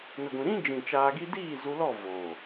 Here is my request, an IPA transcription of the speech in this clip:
n ə˨ ɡʷ ĩ˨ ɾ ĩ˦ d͡ʒ ĩ˨ t͡ʃ aː˧ ɡ i˦ d iː˦˨ z u˧ l ɔ˦˨ v oː˨

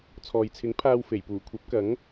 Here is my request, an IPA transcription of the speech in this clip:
t͡sʰ ɔː˨ j t͡sʰ ɪ˨˥ ŋ pʰ aː˧ w f e˨˩ j p uː˨˩ kʷʰ ɐ˨˥ p̚ k ɐ˨˥ ŋ

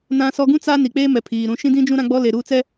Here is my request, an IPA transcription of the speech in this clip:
n ã˦ s ɔ˦ ɡ ũ˦ t͡s a˦ n i˨ k͡p eː˦ m ɛ˨ pʰ iː˨ ɾ ũ˨ ʃ ĩ˦ d ĩ˦ d͡ʒ ũ˦ ɾ ã˦ ɡ͡b ɔ˦ l e˨ ɾ uː˦ t͡s ɛ˦

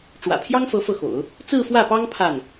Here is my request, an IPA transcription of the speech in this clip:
ʈ͡ʂ w ä̰˨˩ pʰ j ɑ˥ ŋ f ɤ˧˥ f ɤ˥˩ x o̰˨˩˦ ʊ̯ | t͡s ɹ̩˥˧ f w ä˥˩ p ɑ˥ ŋ pʰ a˥˩ n

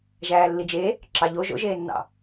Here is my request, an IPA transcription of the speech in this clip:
ʒ æː lː i d͡ʒ e | ǁ ɑ ʎ o ʒ o̰ ʒ eː nː ɑ̰

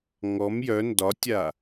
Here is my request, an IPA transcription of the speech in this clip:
ŋ ɔ m j œ n d ɒ tʲ a

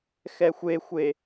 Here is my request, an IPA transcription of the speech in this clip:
x ɛ xʷ e xʷ e

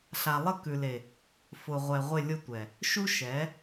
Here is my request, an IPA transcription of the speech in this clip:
ɬ a˨ lˠ ə˦˨ k ʉ˨ l e˨ | f ʊ˨ ʁʷ ɛ˨ ʁʷ ɪ˦˨ lʲ ʊ˦ tʷ ɛ˨ | ʃ u˦ ʃ ɛ˨˦

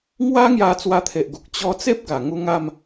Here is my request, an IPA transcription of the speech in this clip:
ŋ w a˦ ŋ j a˧ t͡s w a˧ t̪ʰ e˨ ʔ ɡ u˨ k̚ t͡ɕ ɔ˧ t͡s e˦ p̚ ɡ a˨˩ ŋ u˧ ŋ a˥˧ m

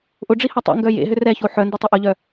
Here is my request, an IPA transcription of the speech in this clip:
ʔ ʊ ɖ͡ʐ i h ɐ tˤ ḛ ŋ ɡ œ j ḛ ɦ ʏ r ɛ ç o ħ œ n d ʏ tˤ ɪ ʔ ʊ ʎ œ

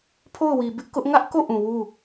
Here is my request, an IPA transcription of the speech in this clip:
pʰ o˦˨ ʊ̯ w i˨ b ɪ˦ ʔ k ʊ˦ ʔ ŋ ä˦ ʔ k o˦˨ ʔ ũ˨ w u˦˨

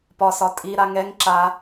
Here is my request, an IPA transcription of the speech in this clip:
p ɒ s ɒ tʼ i ɾ a ŋ ɛ ŋ ǁ a

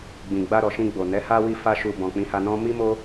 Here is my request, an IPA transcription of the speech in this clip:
ɡ͡b ĩ˨ ɡ͡b a˧ ɾ ɔ˨ ʃ ĩ˧ ɡ͡b o˨ n ɛ˨˦ h a˦ w i˦˨ f a˧ ʃ u˨ b ɔ̃˨ k͡p ĩ˨˦ h a˧ n ɔ̃˦ m i˦ m o˦

